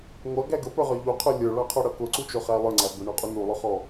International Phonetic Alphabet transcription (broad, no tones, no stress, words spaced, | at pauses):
ŋʷʌɡæ ɡəpə˞ʁə˞ ʎuqʰə˞ lʲə˞ɭɑqʰɔɽʌ kʊǀut͡ʃʊχæ lˠə˞ŋ͡ǀæ bʊɳɔqʼu nulˠʊχɔ